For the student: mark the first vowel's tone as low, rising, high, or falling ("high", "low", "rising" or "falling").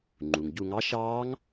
low